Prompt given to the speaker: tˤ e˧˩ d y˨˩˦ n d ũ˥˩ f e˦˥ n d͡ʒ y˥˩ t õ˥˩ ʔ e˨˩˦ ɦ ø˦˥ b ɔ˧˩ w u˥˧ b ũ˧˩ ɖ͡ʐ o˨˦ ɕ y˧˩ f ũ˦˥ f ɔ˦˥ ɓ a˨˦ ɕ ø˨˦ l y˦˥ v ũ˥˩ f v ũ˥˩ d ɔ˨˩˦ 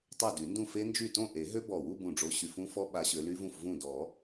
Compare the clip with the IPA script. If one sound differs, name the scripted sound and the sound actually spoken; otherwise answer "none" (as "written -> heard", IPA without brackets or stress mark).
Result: none